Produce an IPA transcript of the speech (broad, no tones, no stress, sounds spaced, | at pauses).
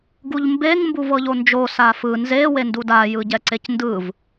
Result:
ɡ u ʎ m b e ŋ m b u v ɤ ʎ o n d͡ʒ o s a f ɯ n z e w e n d u d a j ɯ ɟ ɛ ǀ e c n d ɯ v